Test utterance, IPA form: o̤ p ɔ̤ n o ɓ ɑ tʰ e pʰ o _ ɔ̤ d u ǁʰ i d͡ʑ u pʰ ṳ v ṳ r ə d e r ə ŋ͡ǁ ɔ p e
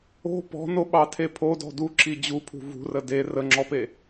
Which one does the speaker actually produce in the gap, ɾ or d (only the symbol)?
d